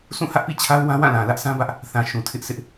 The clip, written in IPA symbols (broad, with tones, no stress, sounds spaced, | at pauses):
sʰ ũ˦˨ h ä˦ ʔ p ḭ˦˨ t͡ɕʰ a˦ ʊ̯ w ã˦ w ã˦˨ l ã˨ l ä˦ ʔ s ã˦ b ä˦ ʔ | θ ã˨ ʃ ũ˨ tʰ ɪ˦ ʔ sʰ ɪ˦ ʔ